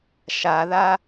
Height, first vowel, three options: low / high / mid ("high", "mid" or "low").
low